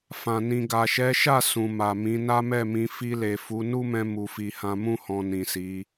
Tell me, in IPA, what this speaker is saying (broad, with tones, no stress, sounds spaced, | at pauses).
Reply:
f ã˨ n ĩ˨ ɡ a˨ ʃ ɛ˨˦ ʃ a˦˨ s ũ˨ m a˨ m ĩ˨˦ n a˦ m ɛ˦˨ m ĩ˧ f i˧ l e˨ f u˨˦ n u˦ m ɛ̃˧ m u˨ f i˨ h ã˧ m ũ˦ h ɔ̃˧ n ĩ˨ s i˨˦